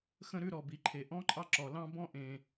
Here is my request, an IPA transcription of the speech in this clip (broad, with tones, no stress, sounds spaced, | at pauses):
x ə̃˥ ɾ ʉ˥ ɾ ɔ˩ b i˩ ǃʰ e˩ ʔ ɔ̃˥ ǃʼ ɑ˥ ǁ ɔ˩ l ɑ̃˥ b ɔ̃˥ ʔ ẽ˩